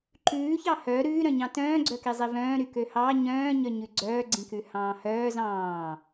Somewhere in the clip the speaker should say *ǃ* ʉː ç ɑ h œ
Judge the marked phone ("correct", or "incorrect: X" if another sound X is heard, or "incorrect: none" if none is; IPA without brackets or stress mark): correct